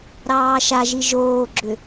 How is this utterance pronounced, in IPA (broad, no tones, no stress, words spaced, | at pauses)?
ɾɑːʃaʒi ʒoːɡ͡ǁʏ